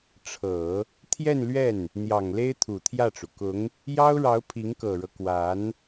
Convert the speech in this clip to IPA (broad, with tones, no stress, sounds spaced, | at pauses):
ʈ͡ʂʰ ɤ˨˩˦ | t̪ʰ j ɛ˥˧ n l ɥ ɛ˥˩ n | n̪ j ɑ˨˩ ŋ l e˥ ɪ̯ t̪ʰ u˨˩ t̪ʰ j ä˥˩ ʈ͡ʂ u˩ k ʊ˧˥ ŋ | j ɑ˥ ʊ̯ ɻ ɑ˧˥ ʊ̯ pʰ i˧˥ ŋ k ɤ˨˩ ɻ ɤ˦ k w a˧˥ n